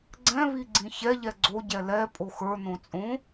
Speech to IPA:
ɡ͡ǀ ɛ̃ β i ɡ͡ǀ ĩ ç ɛ ʎ ɛ ɡ͡ǀ o ɟ ɛ l ɛ pʼ o x ə˞ n õ t͡sʼ õ

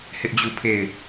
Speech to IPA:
h ɪ˦ ʔ d͡ʑ u˦˨ pʰ e˦˨ ɪ̯

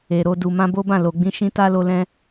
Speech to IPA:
e˨ ɾ o˧ d u˨ m ã˧ b o˦ b ã˦˨ l o˨ ɡ͡b ĩ˧ ʃ ĩ˦ t a˦ l o˧ l ɛ̃˦

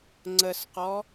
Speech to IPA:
ŋ͡ǀ ə s q ɔ

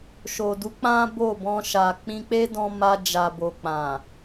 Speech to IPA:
ʃ o˨ d u˨˦ k͡p ã˦ b o˦˨ b ɔ̃˧ ʃ a˨ k͡p ĩ˧ k͡p e˦ d ɔ̃˧ m a˧ d͡ʒ a˨ b o˨ k͡p ã˨

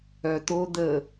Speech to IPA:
œ t̪ o d̪ ə

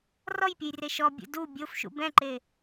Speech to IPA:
r ɔ j pʲ ʊ j r e ʃ ɔ bʲ ṵ d u bʲ o f ʃ ṵ b ɛ̃ ǃ e

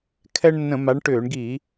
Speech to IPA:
kʰ ɛ˦ ɳ nː ə̃˧˩˧ m a˨˦ ɳ ʈ ʏː˧˩˧ ɳ ɡ i˧˩˧

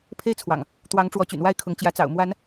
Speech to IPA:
pʰ e˦ ɪ̯ t͡sʰ w ɑ̰˨˩ ŋ | t̪ w ɑ˨˦ ŋ ʈ͡ʂ w ɔ˨˦ t͡ɕ y̰˨˩ n w a˥˨ ɪ̯ kʰ ʊ˨˦ ŋ t͡ɕ j ä˨˦ t͡s ɑ̰˨˩ ʊ̯ m w a˨˦ n

